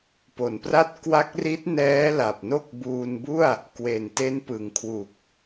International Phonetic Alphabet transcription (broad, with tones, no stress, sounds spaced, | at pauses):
p o˩˦ n p r a˦˥ t̚ k w a˦˥ k̚ r i˦˥ t̚ n ɛː˦˥ l a˨˩ p̚ n o˥˩ k̚ b uː˧ n b u˥˩ a̯ | k w e˨˩ n t e˦˥ n p ɯ˩˦ ŋ kʰ w u˨˩ k̚